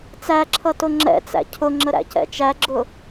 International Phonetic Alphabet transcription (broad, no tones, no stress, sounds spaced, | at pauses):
t͡s æ ǁʰ ʌ t ʊ ŋ͡ǁ ɛ̰ t͡s æ̰ cʰ ʊ ŋ͡ǁ ə ɾ æ̰ c ɛ̰ t͡ʃ æ ɡ͡ǁ ʊ